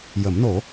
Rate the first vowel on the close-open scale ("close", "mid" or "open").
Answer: mid